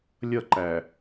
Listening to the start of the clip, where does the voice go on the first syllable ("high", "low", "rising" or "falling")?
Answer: falling